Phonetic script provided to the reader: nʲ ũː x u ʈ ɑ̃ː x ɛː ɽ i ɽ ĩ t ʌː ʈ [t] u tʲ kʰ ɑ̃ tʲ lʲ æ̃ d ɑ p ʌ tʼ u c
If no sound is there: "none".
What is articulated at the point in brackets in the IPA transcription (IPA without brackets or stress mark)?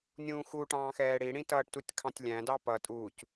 t